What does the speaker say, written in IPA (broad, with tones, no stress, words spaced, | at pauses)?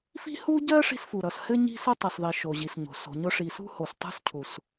fi̤˥hu˥ɟɜ˥ ʂi̤˥sfu˨ɾʌ˨s hɘ˥ɲi̤˥sʊ˥ tˤʌ˨sðˤi˨ ʃo˨ʑi˨sɲo̤˨ so̤˨ɲʊ˥ ʂi˨sṳ˥ ho˨stˤṳ˥scʰu˨s